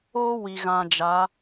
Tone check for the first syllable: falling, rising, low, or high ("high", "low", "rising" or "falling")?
high